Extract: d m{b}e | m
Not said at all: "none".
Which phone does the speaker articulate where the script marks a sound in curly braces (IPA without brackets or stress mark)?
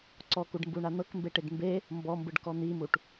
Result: b